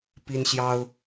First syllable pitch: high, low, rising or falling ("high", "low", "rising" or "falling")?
high